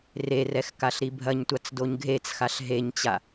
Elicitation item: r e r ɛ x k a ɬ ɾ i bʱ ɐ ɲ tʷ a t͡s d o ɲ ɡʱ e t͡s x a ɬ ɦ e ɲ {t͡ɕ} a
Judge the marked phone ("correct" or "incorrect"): correct